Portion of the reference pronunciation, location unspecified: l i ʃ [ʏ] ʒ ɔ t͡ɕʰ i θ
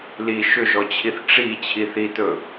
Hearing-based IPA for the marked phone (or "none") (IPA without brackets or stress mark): ʏ